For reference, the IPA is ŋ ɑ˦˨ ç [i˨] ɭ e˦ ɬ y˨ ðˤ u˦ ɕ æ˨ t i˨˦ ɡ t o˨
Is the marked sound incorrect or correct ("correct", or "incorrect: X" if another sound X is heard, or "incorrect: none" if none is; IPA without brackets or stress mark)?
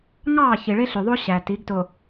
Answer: correct